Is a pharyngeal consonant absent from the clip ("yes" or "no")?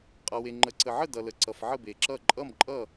no